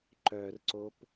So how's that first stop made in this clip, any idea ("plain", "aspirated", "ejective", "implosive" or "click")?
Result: click